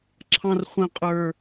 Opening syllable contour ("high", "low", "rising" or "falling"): high